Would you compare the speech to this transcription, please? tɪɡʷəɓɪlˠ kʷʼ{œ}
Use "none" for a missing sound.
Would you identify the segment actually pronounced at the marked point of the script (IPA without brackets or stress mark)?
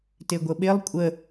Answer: ə